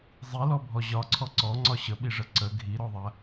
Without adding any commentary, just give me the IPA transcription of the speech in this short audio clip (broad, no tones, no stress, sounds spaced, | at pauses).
zˤ i l ɔ bʱ ɔ ʑ ɒ ǀʰ ɔ ǀ ɔ ŋ͡ǀ ɒ ɕ ə ɓ i ʐ ə ǀ ə ɡʱ i ɾ ɔ ðˤ ɐ